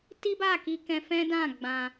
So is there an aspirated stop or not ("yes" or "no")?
no